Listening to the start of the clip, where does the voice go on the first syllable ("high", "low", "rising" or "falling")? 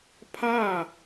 falling